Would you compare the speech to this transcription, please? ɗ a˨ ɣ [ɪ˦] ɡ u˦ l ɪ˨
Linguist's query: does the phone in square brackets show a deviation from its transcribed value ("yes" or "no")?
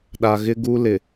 no